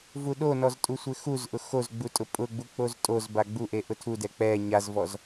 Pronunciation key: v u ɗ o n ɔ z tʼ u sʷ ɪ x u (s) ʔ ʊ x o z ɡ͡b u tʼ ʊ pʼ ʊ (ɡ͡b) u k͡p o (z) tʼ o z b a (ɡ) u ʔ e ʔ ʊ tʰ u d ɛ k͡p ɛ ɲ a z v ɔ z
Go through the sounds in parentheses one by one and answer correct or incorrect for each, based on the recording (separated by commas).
incorrect, correct, correct, incorrect